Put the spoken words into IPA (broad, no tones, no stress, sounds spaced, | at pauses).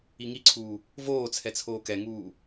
i ŋ i ǀʰ uː | v oː t͡sʰ ɛ t͡sʰ oː k ɛ ŋ uː